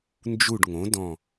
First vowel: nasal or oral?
oral